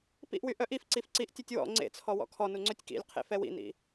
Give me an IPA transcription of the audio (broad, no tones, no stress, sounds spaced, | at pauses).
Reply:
p ḭ ʔ w y ʔ œ ʔ i f ǀ i f ǀ i ʔ tʲ ø tʲ w ɔ̰ ŋ͡ǀ ḛ t͡sʰ ɔ w ɔ̰ kʰ ɔ n u ŋ͡ǀ ø tʲ k ḭ lʲ qʰ ḛ f ɛ w ḭ n ḭ